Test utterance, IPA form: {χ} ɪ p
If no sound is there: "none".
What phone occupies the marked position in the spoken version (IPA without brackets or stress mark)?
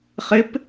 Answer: χ